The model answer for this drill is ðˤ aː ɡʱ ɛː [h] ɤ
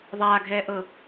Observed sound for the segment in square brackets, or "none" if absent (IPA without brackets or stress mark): ʔ